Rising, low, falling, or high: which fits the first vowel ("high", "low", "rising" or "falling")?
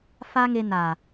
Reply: high